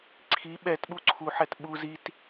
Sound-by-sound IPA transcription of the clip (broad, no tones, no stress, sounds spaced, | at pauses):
ǀʰ i ɓ ɛ t ɓ u ǀʰ u ħ ɛ t ɓ u z i t